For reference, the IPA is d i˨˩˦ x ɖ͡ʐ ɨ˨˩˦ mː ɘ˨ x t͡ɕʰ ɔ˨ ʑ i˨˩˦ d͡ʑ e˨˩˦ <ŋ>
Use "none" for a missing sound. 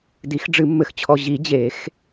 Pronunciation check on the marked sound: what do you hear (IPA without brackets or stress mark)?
x